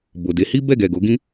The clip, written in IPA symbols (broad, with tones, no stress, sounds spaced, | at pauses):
b o˨ d e˨˦ h i˦ b ɛ˦˨ ɡ ɛ˨ ɡ o˨˦ ɡ ĩ˦